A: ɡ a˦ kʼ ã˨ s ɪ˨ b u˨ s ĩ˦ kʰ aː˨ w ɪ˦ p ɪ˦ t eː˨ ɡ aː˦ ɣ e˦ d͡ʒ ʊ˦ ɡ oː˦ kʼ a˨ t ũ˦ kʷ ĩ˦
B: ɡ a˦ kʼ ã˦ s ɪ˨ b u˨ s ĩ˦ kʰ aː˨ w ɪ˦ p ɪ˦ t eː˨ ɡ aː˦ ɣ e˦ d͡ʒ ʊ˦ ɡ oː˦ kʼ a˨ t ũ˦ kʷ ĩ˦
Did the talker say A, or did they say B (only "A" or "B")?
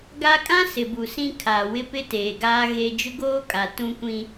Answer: B